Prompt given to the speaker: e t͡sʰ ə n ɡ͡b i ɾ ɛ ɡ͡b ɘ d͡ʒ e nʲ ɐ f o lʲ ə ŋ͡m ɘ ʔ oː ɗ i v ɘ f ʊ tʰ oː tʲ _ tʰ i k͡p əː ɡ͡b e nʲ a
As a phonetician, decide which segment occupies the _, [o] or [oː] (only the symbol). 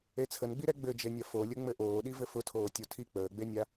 o